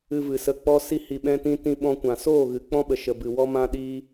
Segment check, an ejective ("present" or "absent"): absent